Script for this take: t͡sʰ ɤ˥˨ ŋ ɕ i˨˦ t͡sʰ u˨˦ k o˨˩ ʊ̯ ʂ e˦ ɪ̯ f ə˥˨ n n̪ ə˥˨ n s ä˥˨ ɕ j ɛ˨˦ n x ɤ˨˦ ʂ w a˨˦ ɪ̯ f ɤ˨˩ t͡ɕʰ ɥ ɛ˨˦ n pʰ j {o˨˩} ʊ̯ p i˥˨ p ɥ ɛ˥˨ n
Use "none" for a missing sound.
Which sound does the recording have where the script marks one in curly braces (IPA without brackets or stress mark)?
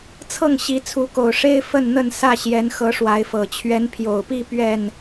o˨˩